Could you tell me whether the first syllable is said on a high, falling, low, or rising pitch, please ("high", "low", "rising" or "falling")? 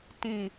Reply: low